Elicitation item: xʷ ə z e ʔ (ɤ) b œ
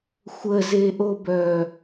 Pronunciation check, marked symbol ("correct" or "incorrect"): incorrect